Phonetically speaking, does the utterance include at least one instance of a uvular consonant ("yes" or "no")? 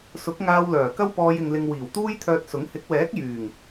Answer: no